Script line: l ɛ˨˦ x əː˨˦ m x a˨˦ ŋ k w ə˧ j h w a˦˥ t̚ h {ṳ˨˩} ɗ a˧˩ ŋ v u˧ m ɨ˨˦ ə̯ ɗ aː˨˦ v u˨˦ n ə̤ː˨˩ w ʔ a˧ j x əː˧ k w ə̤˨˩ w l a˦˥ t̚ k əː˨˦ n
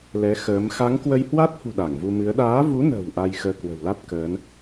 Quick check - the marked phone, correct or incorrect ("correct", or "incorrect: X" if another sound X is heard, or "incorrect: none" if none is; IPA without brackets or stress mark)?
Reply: correct